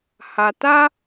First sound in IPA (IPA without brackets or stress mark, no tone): h